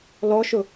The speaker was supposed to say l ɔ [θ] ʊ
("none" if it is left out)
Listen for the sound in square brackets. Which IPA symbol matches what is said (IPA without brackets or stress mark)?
ʃ